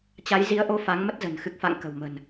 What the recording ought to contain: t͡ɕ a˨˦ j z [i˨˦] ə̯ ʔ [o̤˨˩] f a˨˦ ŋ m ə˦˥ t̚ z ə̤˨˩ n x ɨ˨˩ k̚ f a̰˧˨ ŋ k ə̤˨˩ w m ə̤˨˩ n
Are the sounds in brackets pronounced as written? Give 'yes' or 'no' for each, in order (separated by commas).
yes, no